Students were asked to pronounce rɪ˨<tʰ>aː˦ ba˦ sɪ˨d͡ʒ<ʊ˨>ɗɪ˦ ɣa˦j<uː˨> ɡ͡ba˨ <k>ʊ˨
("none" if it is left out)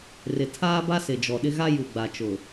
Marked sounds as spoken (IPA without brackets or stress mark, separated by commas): tʰ, ɔ˨, u˨, t͡ʃ